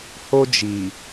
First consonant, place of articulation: glottal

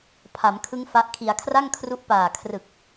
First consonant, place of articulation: labial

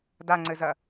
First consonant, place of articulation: alveolar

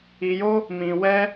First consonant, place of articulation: palatal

